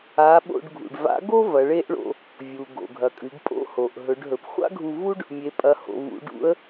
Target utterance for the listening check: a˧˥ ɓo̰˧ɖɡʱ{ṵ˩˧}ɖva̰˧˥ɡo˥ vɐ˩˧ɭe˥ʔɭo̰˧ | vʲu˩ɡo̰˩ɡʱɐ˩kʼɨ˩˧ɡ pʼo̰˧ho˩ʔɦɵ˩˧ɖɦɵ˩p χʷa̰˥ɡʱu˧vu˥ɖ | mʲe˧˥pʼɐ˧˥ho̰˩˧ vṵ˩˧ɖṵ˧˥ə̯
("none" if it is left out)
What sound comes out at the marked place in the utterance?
ṵ˩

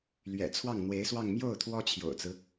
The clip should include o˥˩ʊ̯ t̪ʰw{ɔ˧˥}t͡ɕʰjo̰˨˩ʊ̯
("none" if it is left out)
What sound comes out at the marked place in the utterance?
ɔ˥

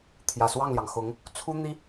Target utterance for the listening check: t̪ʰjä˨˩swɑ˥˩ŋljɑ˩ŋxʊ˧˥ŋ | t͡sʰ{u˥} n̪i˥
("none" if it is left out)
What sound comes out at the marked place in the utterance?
u˥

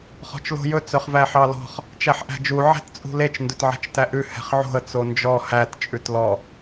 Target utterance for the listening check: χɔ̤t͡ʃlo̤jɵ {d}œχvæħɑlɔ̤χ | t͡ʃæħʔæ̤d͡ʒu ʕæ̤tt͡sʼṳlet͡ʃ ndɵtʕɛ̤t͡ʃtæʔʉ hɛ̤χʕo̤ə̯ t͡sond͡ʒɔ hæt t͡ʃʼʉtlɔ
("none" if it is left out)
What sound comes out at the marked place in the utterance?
t͡s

